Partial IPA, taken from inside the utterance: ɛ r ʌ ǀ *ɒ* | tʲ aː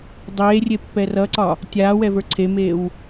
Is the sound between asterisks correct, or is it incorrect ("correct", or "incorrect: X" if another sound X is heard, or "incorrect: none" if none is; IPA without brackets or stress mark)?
correct